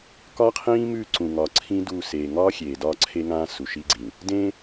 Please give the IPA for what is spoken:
k ɒ˦ qʰ ĩː˦ m ʉ˦˨ ǀ ũ˨ ŋ ɒ˨ ǀʰ ĩ˦ d u˦˨ s e˨ ŋ ɒː˦ xʲ eː˨ d ɒ˦˨ ǀʰ e˦ ŋ ã˦ s u˨ ʃ i˦ ɡ͡ǀ ĩ˨ | d ẽ˦

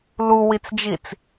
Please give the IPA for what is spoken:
l u w i t͡s d͡ʒ i t͡s

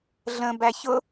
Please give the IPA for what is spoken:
ɮ ə̃ b æ ç ʊ

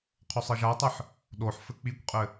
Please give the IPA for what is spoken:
qʰ o sˤ ɘ ʒ a tˤ ɨ ħ | ɗ o ħ f ɘ k͡p i kʷ qʼ ɘ

